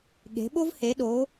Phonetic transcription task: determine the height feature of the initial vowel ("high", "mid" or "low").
mid